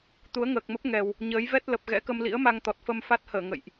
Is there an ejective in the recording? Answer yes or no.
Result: no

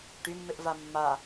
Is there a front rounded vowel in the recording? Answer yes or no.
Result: yes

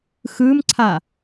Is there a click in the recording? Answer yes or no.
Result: yes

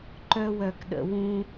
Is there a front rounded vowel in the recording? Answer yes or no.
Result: yes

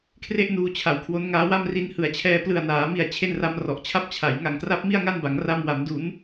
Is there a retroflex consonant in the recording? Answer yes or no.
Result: no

